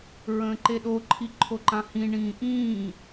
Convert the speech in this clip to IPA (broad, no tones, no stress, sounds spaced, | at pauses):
ɹ ə̃ː ǃ e ɗ o ǃʰ i ǃʰ o ǃ ã h ĩ ɳ ĩː ʔ ĩː